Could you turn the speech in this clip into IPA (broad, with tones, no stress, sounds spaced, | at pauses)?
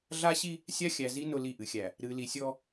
ɮ a˦ ɕ i˦ | sʲ a˦ xʲ æ˨ z i˦ n ʊ˦ l i˦˨ ʔ ɨ˨ xʲ æ˨ | ɾ ɨ˨ l i˨ sʲ ɔ˦